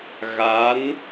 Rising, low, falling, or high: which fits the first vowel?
rising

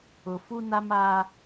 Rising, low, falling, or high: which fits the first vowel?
low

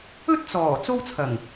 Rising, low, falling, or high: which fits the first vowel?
high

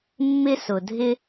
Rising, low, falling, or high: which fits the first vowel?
high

